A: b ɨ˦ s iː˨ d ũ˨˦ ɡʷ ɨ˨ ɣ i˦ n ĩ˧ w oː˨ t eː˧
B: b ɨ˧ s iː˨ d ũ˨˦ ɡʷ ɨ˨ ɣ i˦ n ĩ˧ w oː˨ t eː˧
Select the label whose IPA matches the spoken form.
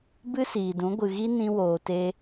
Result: A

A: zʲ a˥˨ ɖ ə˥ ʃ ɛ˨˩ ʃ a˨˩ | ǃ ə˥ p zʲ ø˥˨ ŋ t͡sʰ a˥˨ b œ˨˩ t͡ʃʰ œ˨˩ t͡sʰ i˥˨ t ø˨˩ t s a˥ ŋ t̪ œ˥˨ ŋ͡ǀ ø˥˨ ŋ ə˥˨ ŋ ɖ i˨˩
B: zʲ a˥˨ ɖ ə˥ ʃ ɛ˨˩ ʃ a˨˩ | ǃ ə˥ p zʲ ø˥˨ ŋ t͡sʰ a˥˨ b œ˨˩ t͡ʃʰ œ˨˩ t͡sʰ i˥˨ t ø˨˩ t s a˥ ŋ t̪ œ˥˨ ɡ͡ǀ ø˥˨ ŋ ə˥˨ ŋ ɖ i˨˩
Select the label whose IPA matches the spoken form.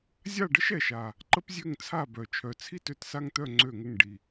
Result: A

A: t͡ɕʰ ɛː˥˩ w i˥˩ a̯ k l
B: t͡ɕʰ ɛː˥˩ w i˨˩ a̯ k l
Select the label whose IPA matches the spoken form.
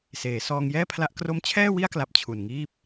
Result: A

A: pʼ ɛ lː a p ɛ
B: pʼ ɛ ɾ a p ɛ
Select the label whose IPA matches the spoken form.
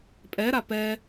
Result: B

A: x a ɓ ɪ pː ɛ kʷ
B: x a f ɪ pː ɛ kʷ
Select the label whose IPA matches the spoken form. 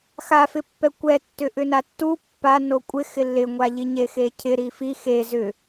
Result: B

